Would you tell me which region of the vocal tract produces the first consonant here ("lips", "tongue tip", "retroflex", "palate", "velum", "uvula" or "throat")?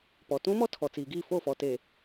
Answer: lips